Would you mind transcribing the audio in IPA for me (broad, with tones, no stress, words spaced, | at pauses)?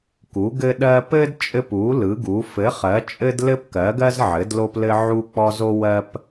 ku˩˥ɡɘ˦ ɗɜ˦ pɘ˦d t͡ʃʼɘ˦p u˩˥ lɯ˩˥ɡu˩˥ fɘ˩˥χɜ˩˥t͡ʃʼɘ˦d lɘ˦pkɜ˩˥ɡɜ˦z ʕɘ˩˥dlo˦plɘ˦ ʕu˦k͡pɔ˦zo˦ wɜ˦p